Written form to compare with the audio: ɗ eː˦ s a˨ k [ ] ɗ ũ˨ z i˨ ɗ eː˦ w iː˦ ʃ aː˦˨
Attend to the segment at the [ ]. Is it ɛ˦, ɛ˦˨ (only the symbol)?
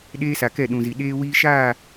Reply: ɛ˦˨